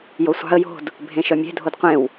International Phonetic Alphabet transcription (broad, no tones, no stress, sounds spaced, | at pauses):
j o sʷ ɑ̤ ə̯ j o̤ d | bʱ ẽ ʃ œ mʲ e̤ dʱ o d qʷ ẽ w